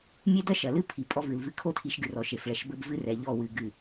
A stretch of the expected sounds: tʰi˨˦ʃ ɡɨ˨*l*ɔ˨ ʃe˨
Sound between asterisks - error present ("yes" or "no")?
yes